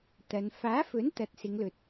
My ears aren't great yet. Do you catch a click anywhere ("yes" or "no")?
no